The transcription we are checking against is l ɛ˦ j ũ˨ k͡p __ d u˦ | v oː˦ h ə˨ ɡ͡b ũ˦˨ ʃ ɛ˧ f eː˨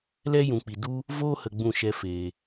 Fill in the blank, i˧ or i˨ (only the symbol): i˨